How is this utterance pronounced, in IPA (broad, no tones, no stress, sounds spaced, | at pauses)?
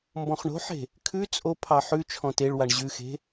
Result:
m b ɔ̃ χ ɳ o̤ ħ e̤ | kʰ ʉ t͡sʼ o pʰ ɑ ħ ʉ t͡ʃʰ ɔ̃ t e ɭ w a ɳ ʑ ʉ x e̤